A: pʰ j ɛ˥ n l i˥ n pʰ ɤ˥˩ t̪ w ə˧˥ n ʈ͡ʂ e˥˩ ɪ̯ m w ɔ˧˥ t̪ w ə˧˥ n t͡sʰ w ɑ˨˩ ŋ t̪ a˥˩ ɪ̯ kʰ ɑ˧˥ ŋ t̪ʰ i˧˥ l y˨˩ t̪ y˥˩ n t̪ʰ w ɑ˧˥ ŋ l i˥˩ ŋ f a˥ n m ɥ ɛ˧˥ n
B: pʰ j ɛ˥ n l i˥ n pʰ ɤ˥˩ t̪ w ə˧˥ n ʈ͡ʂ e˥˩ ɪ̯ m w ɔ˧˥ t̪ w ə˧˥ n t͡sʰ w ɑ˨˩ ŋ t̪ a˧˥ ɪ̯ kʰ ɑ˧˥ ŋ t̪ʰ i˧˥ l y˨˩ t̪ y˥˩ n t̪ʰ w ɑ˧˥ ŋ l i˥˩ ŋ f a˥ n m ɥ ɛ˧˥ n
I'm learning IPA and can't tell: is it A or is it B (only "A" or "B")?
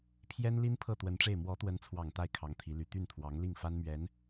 A